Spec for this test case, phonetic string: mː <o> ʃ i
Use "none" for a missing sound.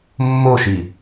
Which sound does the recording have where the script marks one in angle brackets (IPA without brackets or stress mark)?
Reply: o